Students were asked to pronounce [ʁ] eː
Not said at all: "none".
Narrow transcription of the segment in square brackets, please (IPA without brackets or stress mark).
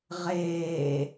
ʁ